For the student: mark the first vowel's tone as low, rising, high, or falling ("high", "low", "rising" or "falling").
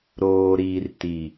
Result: low